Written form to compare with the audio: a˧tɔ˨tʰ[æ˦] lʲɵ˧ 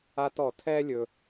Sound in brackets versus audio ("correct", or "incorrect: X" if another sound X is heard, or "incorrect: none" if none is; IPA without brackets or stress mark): incorrect: ɛ˦